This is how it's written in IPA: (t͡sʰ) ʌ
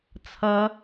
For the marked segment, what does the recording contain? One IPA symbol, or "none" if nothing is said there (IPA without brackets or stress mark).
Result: t͡sʰ